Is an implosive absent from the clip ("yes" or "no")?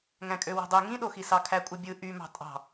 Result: no